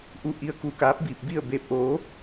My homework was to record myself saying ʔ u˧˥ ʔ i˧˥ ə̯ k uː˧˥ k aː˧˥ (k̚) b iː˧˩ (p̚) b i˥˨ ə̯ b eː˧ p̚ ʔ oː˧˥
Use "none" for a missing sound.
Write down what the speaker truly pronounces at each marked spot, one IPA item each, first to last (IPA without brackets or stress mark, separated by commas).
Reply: p̚, p̚